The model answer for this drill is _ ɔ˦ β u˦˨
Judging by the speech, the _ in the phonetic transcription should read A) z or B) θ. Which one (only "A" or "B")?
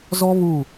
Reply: A